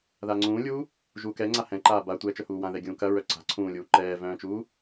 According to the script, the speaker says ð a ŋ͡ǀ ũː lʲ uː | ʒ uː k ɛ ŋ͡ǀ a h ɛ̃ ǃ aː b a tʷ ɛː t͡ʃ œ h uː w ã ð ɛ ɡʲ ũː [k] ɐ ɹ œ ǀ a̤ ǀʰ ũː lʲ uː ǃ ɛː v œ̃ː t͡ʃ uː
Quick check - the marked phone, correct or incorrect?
correct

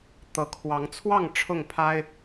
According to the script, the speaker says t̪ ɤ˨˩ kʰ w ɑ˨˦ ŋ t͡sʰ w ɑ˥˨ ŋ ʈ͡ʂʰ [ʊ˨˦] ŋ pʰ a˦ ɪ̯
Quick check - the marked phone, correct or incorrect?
incorrect: ʊ˥˨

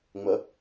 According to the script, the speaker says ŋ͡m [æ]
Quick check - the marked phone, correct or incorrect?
incorrect: ə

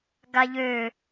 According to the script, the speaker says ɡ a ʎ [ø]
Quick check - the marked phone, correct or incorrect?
correct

